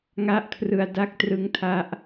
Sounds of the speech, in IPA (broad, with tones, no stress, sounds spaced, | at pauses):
ŋ a˥˩ ʔ kʰ r ɯ˧ a̯ d a˥˩ k̚ t r ɯ˦˥ ŋ tʰ a˦˥ ʔ